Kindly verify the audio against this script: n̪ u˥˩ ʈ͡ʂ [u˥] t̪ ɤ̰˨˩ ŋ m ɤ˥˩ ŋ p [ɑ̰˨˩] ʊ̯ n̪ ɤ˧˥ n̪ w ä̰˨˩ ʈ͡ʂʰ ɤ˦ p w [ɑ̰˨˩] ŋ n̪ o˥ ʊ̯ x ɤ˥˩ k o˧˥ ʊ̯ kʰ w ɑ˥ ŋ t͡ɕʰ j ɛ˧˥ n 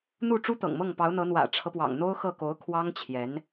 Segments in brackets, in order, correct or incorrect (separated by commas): correct, incorrect, correct